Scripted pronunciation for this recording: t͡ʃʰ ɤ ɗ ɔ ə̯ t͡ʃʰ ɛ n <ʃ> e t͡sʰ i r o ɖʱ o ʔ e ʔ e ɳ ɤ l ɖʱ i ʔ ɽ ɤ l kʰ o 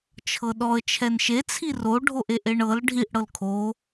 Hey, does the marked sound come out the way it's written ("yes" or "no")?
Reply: yes